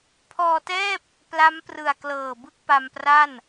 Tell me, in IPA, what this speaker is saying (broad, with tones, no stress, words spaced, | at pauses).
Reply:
pʰɔː˧tɛː˥˩p̚ | pla˦˥mprɯ˨˩a̯ klɤː˨˩bɯ˥˩k̚pa˧mpra˥˩n